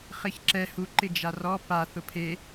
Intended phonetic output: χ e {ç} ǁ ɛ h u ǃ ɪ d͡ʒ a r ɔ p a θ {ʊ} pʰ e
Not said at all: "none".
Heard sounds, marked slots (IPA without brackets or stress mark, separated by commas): ç, ʊ